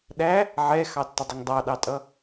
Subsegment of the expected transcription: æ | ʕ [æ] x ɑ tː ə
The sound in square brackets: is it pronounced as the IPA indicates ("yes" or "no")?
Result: no